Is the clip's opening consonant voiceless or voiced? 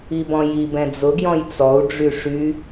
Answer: voiced